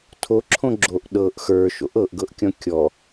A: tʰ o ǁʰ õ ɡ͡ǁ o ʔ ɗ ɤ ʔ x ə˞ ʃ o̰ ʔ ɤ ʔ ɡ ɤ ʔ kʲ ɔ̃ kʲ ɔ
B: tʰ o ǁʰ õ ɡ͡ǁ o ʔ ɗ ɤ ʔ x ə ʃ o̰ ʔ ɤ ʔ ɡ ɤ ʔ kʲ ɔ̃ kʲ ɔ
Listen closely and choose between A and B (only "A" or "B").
A